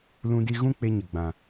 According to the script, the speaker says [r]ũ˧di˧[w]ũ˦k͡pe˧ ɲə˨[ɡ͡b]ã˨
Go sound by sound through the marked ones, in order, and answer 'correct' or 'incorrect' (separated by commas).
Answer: incorrect, incorrect, correct